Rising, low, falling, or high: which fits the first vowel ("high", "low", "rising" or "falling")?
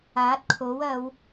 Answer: rising